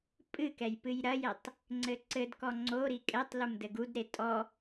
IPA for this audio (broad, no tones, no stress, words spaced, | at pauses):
pʼɨkɛj pɨjɾɐjɛtˤ | ŋ͡ǀɘǀɘdkɔ ŋ͡ǀoɾi kʼɛtˤ lumdɘɡudɾe tʼɔ